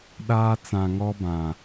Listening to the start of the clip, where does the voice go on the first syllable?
high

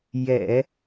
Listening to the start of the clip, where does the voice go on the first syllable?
low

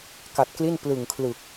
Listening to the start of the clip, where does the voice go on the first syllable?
low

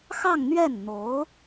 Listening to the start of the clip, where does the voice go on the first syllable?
falling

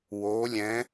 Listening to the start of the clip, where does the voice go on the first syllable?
rising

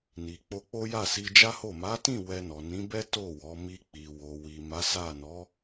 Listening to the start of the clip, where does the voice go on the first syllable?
low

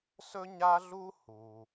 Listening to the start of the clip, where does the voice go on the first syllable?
high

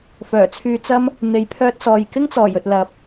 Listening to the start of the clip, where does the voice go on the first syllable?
low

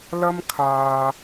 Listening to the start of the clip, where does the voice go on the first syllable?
high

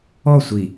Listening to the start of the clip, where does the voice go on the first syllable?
falling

